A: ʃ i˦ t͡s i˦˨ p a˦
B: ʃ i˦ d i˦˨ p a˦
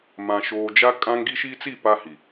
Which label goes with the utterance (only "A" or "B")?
A